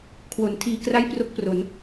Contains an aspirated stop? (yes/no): yes